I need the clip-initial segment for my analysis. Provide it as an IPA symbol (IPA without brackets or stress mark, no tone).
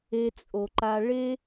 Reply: e